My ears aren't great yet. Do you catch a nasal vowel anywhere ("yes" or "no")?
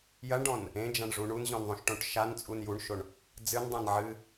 yes